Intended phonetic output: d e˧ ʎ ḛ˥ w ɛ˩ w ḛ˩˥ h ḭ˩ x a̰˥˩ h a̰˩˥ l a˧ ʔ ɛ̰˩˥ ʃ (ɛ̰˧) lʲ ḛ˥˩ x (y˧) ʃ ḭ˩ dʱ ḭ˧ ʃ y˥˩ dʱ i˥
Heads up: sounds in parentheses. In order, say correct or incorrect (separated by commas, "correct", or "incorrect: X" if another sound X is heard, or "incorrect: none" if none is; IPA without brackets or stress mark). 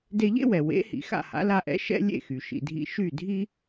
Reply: incorrect: ɛ̰˥, incorrect: y˩